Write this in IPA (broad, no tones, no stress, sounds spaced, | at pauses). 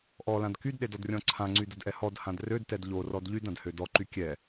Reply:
ʔ ɔ l ã d k y d ɗ e d ɔ d rʲ ɔ̃ ǀʰ ã ŋ͡ǀ y d ə d ʔ ɛ h ɔ d h ã d r ø d t ɛ d ʎ o r ɔ d ʎ y d ã d h ø d ɔ ǃ y kʲ ɛ